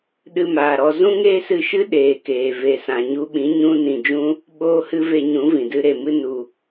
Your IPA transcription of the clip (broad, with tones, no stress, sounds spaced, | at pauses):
ɗ ɨ˧ m aː˨ ɾ ɔ˧ z ũ˦ ŋ eː˦ s ɨ˧ ʃ ɨ˦ ɗ eː˨ k eː˨ v e˨ s ã˨ ɲ u˧ ɓ ĩ˨˦ ɲ ũ˧ n ĩ˨ d͡ʒ ũ˧ | ɓ oː˦ h ɨ˦ v e˧ ɲ ũ˨˦ v ĩ˨ d ɨ˦ ɾ e˨ m ɨ˦ n u˨